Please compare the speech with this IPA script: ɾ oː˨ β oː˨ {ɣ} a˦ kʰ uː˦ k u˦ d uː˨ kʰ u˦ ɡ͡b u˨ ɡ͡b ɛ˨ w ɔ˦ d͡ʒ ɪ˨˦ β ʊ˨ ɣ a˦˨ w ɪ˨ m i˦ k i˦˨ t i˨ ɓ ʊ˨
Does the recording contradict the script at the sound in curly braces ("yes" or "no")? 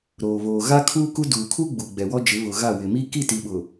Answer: no